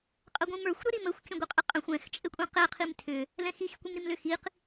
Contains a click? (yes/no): no